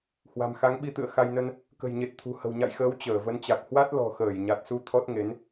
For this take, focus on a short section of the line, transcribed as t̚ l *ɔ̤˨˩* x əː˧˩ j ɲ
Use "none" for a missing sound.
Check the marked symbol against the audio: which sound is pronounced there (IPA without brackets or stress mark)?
ɔ̤˨˩